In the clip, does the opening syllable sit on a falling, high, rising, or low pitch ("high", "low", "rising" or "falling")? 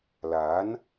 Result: rising